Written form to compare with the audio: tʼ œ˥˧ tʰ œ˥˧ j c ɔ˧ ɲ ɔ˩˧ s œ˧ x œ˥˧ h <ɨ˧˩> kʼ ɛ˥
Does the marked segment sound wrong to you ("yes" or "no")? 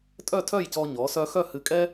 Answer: no